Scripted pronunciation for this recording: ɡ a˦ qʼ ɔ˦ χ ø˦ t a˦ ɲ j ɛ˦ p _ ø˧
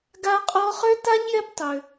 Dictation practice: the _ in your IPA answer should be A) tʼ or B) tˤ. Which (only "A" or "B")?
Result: B